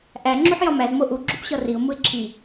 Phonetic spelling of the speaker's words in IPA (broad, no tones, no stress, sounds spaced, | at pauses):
ʔ æ ŋ͡ǁ u ħ j ɒ m æ z m o ʔ u ɡ͡ǁ u p ɕ ɒ r i ʊ̯ m u ɪ̯ ǁʰ i